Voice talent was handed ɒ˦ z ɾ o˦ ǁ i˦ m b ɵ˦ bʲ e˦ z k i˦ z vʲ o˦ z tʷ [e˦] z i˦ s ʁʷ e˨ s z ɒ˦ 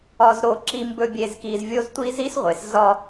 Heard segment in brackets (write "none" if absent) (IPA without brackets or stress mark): i˦